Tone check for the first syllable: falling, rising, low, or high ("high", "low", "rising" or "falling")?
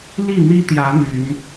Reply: falling